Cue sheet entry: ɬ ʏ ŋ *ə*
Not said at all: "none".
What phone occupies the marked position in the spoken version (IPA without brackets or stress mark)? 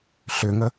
ə